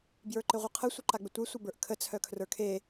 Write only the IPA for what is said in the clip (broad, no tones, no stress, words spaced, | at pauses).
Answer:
bjə˞ǃɪʁʷɯqʰə sʷɯǃaɡ͡bɪtʷe sʷœbə˞ʔkʰə t͡sʰœkʰrə˞kʰe